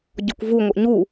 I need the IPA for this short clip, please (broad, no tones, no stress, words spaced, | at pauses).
ɟɔkʷvu ŋʷəʔɲu